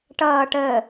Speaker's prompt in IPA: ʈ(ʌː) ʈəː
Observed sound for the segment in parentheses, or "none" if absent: ʌː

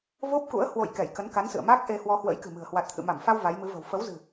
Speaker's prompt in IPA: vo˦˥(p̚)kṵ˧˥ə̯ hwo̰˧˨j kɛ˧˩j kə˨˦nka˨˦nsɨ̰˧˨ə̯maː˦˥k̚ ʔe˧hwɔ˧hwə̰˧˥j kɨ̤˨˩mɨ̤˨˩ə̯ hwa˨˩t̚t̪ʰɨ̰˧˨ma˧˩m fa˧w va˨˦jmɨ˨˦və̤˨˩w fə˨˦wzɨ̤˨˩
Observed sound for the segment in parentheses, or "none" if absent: p̚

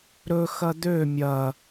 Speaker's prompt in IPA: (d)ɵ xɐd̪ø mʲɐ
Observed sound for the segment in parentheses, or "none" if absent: ɾ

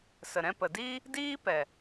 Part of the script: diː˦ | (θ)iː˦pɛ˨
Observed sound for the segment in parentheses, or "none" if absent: d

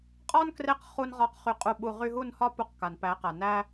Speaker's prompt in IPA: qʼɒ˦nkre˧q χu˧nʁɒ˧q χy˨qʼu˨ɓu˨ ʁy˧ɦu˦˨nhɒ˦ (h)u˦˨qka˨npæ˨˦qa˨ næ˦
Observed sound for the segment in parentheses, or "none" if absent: p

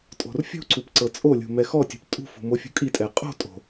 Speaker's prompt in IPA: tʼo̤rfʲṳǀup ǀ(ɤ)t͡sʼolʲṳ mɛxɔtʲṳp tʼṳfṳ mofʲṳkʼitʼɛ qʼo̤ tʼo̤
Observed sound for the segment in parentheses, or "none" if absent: ɤ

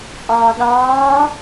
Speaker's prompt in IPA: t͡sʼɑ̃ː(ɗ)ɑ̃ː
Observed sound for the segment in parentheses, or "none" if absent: ɗ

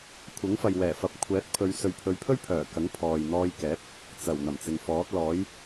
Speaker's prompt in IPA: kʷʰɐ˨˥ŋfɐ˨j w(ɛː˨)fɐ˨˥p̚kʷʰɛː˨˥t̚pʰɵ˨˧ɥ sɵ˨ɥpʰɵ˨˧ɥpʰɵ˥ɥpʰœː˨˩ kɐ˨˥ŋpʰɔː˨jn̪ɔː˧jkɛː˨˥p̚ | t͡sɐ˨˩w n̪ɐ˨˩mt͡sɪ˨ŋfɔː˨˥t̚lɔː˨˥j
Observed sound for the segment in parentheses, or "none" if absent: ɛː˨˩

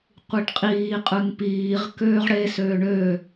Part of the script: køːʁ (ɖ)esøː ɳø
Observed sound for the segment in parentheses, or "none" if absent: ɽ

